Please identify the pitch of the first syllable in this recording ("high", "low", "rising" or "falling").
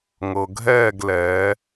low